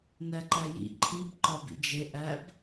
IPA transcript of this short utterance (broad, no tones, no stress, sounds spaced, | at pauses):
n æ ǃ æ j ḭ ǃʰ i b ǃ ɒ b ḭ d͡ʒ e ʔ æ b